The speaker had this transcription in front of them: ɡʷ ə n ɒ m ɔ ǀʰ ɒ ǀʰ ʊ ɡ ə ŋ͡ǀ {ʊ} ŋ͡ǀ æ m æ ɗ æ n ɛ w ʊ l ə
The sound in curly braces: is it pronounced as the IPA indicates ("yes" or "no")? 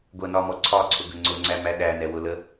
yes